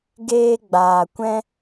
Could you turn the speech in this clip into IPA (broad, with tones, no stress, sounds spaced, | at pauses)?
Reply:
ɡ eː˧ ɡ͡b aː˨ kʷ ɛ̃˦